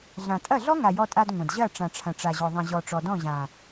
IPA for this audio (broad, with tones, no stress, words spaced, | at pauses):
ɮã˨tʼɐ˦˨ɮɔ˦ ŋa˨jɔ˧tʼa˧d ŋʷɐ̃˨d ʑɐ˦˨ ʈ͡ʂã˨ʈ͡ʂʰɐ̃˨ʈ͡ʂa˨ʑɔ˨ ðˤɐ̃˨ʑɔ˨ ʈ͡ʂɔ˨dɔ̃˦˨ʑã˨